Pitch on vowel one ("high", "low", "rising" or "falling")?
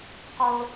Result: high